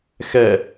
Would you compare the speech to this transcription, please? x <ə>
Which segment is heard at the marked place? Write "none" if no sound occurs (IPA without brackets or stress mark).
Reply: ɛ